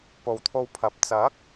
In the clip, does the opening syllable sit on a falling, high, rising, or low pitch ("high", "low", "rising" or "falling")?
low